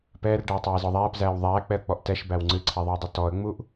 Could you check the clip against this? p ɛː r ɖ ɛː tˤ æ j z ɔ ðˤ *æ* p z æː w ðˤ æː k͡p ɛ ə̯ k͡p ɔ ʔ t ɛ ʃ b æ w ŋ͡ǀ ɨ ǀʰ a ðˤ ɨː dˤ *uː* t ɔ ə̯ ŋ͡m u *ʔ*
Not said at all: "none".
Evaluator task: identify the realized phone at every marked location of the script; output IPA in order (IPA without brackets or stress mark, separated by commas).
æː, u, ʔ